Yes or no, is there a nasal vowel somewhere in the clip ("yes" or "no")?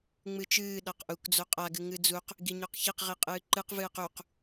no